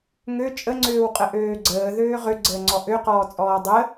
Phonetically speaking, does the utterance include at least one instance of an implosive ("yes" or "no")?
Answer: no